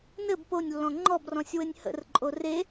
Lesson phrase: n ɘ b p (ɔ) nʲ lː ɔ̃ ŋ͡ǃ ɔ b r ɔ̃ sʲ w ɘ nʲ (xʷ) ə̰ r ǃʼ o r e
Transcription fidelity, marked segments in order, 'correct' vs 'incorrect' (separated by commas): incorrect, incorrect